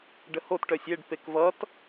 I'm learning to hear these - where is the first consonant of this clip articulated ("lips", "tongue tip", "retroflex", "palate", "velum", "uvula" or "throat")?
retroflex